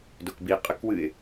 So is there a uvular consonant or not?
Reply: yes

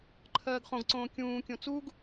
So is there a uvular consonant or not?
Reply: yes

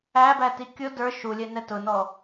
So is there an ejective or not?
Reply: no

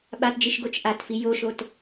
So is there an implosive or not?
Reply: yes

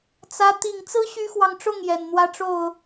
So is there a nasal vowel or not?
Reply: no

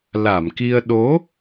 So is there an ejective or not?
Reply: no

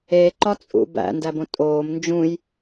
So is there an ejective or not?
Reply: yes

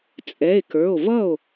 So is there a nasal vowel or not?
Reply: no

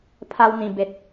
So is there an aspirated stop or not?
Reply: yes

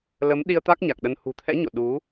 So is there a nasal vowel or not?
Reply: no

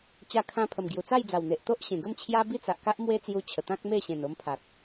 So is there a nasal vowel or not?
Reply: yes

